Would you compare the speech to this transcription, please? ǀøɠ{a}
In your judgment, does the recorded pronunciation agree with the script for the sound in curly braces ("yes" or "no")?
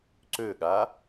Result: yes